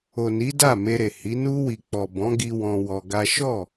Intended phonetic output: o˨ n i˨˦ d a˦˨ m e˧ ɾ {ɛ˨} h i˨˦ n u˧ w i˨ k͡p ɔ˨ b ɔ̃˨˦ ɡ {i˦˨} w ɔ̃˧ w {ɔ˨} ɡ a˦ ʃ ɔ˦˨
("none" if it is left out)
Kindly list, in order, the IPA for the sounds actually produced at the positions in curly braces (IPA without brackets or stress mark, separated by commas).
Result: e˨, i˧, ɔ˧